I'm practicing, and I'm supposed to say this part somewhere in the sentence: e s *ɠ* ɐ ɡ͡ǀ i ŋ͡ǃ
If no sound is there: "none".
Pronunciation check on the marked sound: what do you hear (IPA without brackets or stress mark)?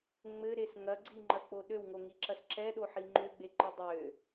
ŋ